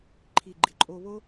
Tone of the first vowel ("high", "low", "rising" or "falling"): low